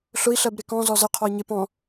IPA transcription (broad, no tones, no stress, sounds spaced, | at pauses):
ɬ ʊ i̯ ɬ ɜ b ɾ ɪ k ɔ̃ z ɔ z ə qʰ ɔ i̯ ɲ ɪ p ɔ̃